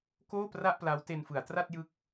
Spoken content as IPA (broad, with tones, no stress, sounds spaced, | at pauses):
k oː˥˩ p r a˥˩ ʔ p l a˦˥ w t e˧ n f ɯ˩˦ a̯ t r a˥˩ t̚ j ɯ˦˥ k̚